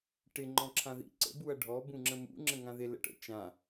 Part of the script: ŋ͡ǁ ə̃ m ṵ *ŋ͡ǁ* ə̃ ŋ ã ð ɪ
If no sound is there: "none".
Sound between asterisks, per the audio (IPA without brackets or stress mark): ŋ͡ǁ